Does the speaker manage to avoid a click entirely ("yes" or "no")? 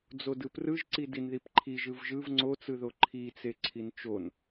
no